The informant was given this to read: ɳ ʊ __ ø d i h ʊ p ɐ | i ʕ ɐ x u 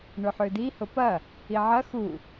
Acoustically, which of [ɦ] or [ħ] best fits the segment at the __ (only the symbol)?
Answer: ħ